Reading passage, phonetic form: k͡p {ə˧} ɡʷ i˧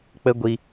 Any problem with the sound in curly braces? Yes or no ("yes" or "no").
no